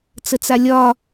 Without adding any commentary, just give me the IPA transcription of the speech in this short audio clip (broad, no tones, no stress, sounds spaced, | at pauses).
t͡s ə t͡s a lʲ ɒ